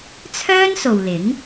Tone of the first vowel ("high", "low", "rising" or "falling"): high